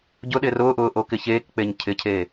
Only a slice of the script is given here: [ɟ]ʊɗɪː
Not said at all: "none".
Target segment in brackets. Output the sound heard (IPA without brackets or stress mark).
ɟ